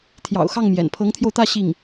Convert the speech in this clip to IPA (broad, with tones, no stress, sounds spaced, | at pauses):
t̪ʰ j ɑ̰˨˩ ʊ̯ x ɑ˥˩ ŋ m j ɛ̰˨˩ n pʰ ɤ˧˥ ŋ t̪ʰ j o˧ ʊ̯ t̪ ä˥˧ ɕ i˥˩ ŋ